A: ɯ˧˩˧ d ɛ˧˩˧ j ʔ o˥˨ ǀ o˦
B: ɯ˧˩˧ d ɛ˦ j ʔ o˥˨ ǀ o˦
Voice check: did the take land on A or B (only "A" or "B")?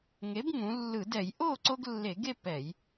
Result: A